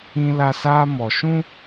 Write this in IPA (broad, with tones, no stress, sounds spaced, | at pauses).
ĩ˦ l a˦ s aː˦ m ɔ˨ ʃ ũ˦